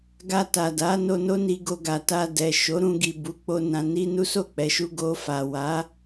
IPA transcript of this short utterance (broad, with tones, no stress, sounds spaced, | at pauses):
ɡ a˧ t a˨ d a˨˦ n o˧ n o˦ n i˧ ɡ o˧ ɡ a˨ t a˧ d ɛ˨ ʃ o˨˦ ɾ ũ˧ ɡ i˨ b u˨˦ k͡p o˧ n ã˨ n i˧ n u˦ s o˦˨ k͡p ɛ˨˦ ʃ u˦ ɡ o˧ f a˨ w a˨˦